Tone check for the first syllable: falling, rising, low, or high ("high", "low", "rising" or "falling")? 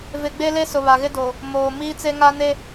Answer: low